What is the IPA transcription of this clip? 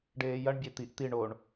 ɖ eː j ɐ ɳ bʲ e t̪ i ʔ t̪ i ɳ o ɳ

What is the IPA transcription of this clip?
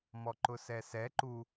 m ɔ ǃ ʊ s ɛ s ɛ ǃ u

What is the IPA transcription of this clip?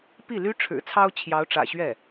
p i˥˩ l y˥ ʈ͡ʂʰ ɻ̩˨˩ t͡sʰ ɑ˥ ʊ̯ t͡ɕʰ j ɑ˧˥ ʊ̯ ʈ͡ʂ ä̰˨˩ ɕ ɥ ɛ˥˩

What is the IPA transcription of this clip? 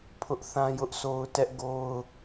pʰ ʊ˦ ʔ θ ã˦ j ʊ˦ ʔ s o˦ ʊ̯ t ɛ˦ ʔ ɡ o˦ ʊ̯

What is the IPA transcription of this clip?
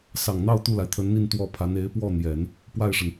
s ɑ˨˩ ŋ n̪ ɑ˥˧ ʊ̯ t̪ u˥˩ l a˩ ɪ̯ t̪ʰ ə˧˥ n n̪ i˥˧ n t̪ w ɔ˥˩ pʰ a˧˥ n e˧˥ ɪ̯ p w ɔ˥˩ n̪ j ɛ˨˩˦ n | p w a˥˩ ɪ̯ ʂ ə˩ n

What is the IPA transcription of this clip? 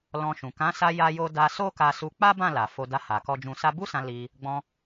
l ɔ̃˧ ʃ ũ˨ k ã˨˦ s a˧ j a˧ j o˧ d a˧ s o˦ k a˧ s u˧ k͡p a˦ b ã˦˨ l a˨ f o˧ d a˧ h a˨ k ɔ˧ d͡ʒ ũ˨ s a˧ b u˦ s ã˧ l i˧ | ɡ͡b ɔ̃˧

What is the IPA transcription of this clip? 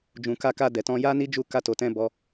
d͡ʒ ũ˨ k a˧ k a˧ d ɛ˨ t ɔ̃˧ j a˦ n i˦ d͡ʒ u˦˨ k a˧ t o˨ t ɛ̃˧ b ɔ˧

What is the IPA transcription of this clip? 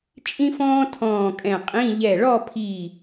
t͡ʃʼ ĩ˥ f ɔ̃ː˥ tʰ ɔ̃ː˧˩ kʼ ɛ̃˧˩ qʼ ĩ˧˥˧ ʎ ɛ˧˩ ɭ ɔ˥˧ pʰ i˧˩

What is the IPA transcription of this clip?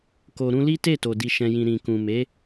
k o˨ ɾ ũ˧ l i˦ t e˦˨ t o˨ d i˨ ʃ ɛ̃˨ j ĩ˨ ɾ ĩ˨ k ũ˨ m e˨˦

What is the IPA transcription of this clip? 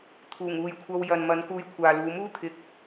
t̪ʰ uː˨˩ ŋ uː˨ j kʷʰ ɐ˧ w j ɐ˨ n m ɐ˨˧ n k uː˧ j kʷʰ aː˨ l uː˨˧ m uː˥ t̪ʰ ɪ˨˥ k̚

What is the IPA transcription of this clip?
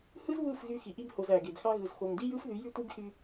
h ɯ˦ z β ɯ˦˨ f ɣ y˧ x i˨ ʔ i˧ b h o˨ z æ˨ ɡ e˨ b x ɑ˧ ɣ ɯ˨ z x o˨ ŋ d i˦ j ɯ˦ f ð y˨˦ j y˦ tʷ i˦ b x y˧

